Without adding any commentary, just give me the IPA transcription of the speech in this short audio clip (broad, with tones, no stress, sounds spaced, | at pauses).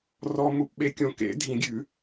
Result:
r ɔ˧ m u˧ p ɓ e˧ kʲ õ˧ k ḛ˨˩˦ dʱ ĩ˨˩˦ ɡʲ ʉ˨˩˦